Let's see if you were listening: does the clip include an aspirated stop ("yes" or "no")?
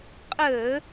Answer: no